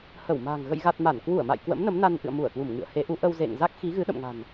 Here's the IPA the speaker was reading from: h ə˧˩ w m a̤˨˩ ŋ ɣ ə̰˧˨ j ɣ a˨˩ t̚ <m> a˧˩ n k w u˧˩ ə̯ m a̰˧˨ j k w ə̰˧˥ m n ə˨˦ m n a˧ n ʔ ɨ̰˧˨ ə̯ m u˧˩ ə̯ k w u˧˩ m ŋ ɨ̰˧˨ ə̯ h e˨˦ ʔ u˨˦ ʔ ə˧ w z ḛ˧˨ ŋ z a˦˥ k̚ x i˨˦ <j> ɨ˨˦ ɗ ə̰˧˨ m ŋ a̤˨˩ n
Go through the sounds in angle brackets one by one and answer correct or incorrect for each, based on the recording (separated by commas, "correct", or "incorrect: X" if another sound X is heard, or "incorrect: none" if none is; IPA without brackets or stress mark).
correct, incorrect: ɣ